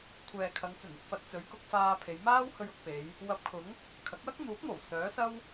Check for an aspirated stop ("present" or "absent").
present